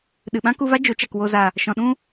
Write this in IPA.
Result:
ɗɨ˨ ɓã˦ku˧va˦ d͡ʒo˨˦t͡ʃa˨k wo˨za˨ | ʃɔ̃˨ɗũ˦

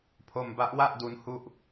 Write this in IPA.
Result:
pʰo˧mba˦˥ʔwa˥˩ʔ du˦˥nhu˥˩ʔ

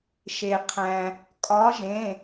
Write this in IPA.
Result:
ʃe˩qʰæ̃˩ | kʼɒ˨˦ʒẽ˩˧˩

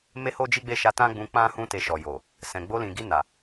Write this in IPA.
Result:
me˦ho˦d͡ʒi˦ ɡ͡be˦˨ʃa˧ tã˦ɡ͡bũ˧ k͡pã˦ hũ˧ te˧ʃɔ˨jo˨ | sɛ̃˨ɡ͡bo˧lĩ˨ɡi˧ na˨

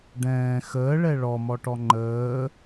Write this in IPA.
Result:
ɖɛ̃ː xəːɭɛ ɭɔmɔʈɔ ŋ͡ǃəː

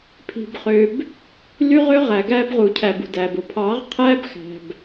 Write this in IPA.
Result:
pʰi̤˨bχø˨b | ly˦ʁø˦ ʁæ˨ɡæ˦bʁu˨cʰæ˨b ṳ˨dæː˨b o˨ pʰɑ˨˦ʁqʰæː˦b xæ̤˨b

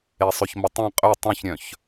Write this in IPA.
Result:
esˤøçmətˤẽ qʼø tˤœ̃çɾʲœ̃ç

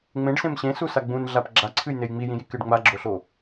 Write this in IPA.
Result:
ŋ͡mẽɖsẽm ɕẽsusa ɡ͡bũnɮap ɡ͡ǁaǀʰɨjnej ŋ͡mijĩjikɨɖ ŋ͡maɡ͡ǁoɬo

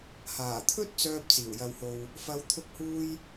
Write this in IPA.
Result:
haː˨˩t̪ʰɵ˥t̚t͡sœː˧p̚t͡siː˨˩w jɐ˨who˨w | fɐ˨˧wt̪ʰʊ˧k̚huː˧j

